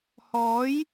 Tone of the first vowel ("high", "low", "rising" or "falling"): rising